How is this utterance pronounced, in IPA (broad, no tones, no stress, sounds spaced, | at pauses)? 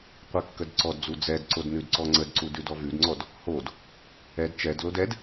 qʷ ɛ kː ə d ǀ ɔ d d͡z u d͡z ɛ d ǀ o d n ʉ d ǀ ɔ ŋ͡ǀ ə d ǀ u d ʉ d ɔ v ʉ d ŋ͡ǀ ɔ d | h o d | ɛ d t͡ʃ ɛ d l o d ɛ d